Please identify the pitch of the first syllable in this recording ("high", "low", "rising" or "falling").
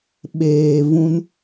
low